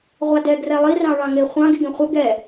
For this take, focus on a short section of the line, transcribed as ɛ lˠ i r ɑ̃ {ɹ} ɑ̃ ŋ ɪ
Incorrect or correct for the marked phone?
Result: correct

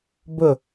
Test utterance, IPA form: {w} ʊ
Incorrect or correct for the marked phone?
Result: incorrect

